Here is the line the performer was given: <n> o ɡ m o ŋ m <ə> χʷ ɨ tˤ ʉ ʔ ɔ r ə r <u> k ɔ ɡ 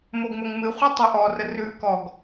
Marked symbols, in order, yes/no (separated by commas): no, no, no